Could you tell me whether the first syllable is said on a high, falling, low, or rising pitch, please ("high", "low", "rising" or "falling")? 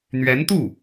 rising